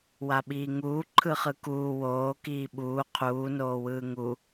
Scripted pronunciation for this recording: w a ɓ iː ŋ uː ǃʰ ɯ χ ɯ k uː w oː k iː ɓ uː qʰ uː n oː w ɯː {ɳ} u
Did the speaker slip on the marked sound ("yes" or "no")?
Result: yes